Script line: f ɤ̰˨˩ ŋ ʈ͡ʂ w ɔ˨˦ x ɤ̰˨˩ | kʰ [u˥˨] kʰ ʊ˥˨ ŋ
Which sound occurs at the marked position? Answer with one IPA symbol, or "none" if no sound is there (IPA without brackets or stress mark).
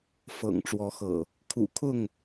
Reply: ṵ˨˩